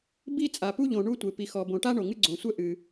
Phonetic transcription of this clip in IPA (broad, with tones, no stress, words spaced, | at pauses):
bi˥t͡sʼa˩pu˥ʎõ˩ ɳu˥tʷe˩ pi˩xɔ˩ bõ˩ʈa˥ ɳo˩ŋɨ˥ɡ͡ǀõ˩sʷɛ˥ ʔɨ˩